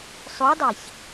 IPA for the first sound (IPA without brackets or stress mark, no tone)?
sˤ